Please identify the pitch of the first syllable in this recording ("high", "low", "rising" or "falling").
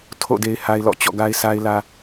falling